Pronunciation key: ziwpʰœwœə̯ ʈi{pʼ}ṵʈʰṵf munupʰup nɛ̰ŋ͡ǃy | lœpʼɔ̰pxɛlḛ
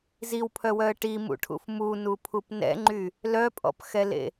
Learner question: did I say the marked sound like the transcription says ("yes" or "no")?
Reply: no